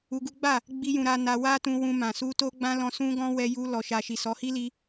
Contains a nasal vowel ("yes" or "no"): yes